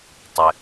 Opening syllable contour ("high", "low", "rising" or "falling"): low